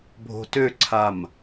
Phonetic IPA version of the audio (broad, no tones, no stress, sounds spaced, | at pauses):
bʱ o̤ t ø ǀʰ a m